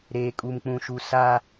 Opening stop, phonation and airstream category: ejective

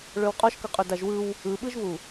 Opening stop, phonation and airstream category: ejective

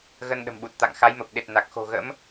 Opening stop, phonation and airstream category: implosive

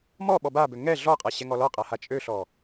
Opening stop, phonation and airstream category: implosive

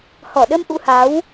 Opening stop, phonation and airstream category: implosive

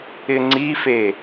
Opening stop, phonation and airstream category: click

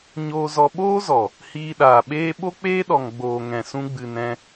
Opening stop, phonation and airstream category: implosive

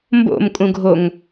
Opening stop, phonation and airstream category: plain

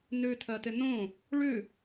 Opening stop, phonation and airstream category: aspirated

